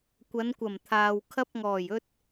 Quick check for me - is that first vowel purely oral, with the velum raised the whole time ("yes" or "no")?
yes